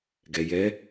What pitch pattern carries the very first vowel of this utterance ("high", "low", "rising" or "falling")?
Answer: low